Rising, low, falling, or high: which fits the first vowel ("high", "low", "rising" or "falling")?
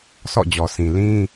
falling